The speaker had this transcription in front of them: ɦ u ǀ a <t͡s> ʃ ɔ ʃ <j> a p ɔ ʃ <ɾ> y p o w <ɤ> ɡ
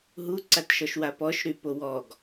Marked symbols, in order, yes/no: no, no, yes, no

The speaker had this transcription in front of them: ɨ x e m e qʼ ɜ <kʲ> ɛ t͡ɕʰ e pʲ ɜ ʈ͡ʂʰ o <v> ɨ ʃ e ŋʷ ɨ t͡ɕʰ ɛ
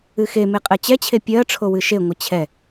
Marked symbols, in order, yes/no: no, no

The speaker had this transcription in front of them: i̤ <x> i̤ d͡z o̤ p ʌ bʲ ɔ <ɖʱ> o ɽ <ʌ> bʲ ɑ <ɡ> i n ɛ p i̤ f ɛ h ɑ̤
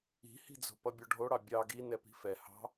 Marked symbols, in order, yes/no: no, yes, no, yes

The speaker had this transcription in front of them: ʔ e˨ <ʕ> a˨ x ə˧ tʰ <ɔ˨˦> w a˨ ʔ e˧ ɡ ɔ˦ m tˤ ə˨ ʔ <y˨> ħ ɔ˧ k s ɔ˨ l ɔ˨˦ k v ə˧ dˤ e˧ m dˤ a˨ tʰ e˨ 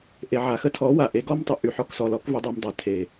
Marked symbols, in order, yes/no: yes, yes, yes

